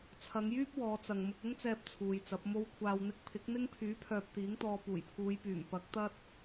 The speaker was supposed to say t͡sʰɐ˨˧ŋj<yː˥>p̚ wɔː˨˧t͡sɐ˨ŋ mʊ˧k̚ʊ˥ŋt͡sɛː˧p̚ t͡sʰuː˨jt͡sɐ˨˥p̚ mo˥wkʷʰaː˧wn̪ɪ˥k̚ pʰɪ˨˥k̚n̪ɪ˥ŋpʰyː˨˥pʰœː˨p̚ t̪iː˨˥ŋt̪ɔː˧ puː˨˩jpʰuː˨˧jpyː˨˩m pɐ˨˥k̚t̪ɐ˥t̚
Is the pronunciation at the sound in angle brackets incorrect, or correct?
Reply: correct